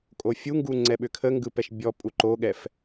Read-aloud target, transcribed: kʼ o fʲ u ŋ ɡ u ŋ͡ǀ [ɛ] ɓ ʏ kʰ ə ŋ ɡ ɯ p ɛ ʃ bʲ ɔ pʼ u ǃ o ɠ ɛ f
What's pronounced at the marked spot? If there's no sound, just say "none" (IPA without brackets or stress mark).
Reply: ɛ